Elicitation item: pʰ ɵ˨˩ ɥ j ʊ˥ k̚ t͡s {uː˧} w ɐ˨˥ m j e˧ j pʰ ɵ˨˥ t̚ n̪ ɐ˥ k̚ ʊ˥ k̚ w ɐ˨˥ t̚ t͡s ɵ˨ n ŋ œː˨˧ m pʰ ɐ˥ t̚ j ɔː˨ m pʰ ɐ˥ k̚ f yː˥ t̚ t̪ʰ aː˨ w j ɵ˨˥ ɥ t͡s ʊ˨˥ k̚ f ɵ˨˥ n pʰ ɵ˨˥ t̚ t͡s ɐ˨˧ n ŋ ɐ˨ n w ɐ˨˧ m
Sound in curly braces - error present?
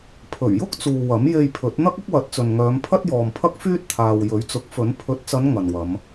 yes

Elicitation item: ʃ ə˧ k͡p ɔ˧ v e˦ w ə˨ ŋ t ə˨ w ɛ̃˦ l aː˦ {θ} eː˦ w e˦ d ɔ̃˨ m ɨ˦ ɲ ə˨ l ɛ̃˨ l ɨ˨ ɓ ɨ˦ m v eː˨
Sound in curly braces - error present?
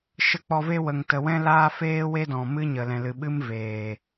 yes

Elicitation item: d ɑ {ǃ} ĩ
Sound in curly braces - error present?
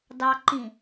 no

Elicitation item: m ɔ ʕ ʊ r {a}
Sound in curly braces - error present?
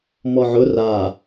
no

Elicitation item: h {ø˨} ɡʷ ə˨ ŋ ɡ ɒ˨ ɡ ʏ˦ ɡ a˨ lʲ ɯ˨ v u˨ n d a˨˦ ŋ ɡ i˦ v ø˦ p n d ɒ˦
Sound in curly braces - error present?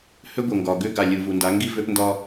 yes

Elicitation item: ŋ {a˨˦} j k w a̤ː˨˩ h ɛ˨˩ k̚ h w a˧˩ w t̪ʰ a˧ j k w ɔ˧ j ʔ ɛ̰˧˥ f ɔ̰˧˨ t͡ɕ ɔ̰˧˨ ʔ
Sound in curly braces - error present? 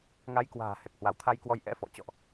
no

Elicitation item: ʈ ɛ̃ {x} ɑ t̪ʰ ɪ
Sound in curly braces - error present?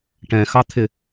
no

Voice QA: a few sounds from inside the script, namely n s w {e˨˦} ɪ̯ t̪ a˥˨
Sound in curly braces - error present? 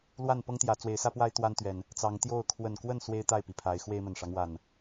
yes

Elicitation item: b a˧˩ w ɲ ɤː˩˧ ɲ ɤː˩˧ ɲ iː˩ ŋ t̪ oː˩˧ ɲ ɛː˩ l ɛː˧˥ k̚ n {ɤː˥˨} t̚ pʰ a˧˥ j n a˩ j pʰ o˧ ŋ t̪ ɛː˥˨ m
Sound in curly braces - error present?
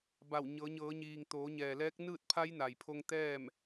yes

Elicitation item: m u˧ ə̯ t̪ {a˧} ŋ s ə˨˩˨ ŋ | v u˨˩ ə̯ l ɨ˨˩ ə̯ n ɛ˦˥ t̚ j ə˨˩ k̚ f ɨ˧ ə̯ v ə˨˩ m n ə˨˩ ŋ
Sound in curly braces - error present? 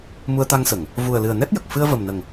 no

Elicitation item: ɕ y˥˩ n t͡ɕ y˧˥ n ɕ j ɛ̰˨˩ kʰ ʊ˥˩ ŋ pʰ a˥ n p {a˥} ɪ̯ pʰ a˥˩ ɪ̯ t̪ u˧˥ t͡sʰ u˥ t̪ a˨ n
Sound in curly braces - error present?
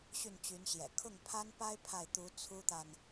no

